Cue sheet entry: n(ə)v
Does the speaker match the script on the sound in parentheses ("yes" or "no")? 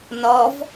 no